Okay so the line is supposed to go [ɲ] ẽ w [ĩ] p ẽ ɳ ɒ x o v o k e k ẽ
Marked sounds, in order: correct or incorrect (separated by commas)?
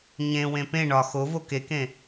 correct, incorrect